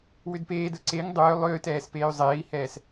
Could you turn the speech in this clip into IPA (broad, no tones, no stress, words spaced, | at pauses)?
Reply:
wʏdpeːdə ǀeŋ dˤʏː lˠʏːtɛːs peːy̯zˤeːi̯hɛːs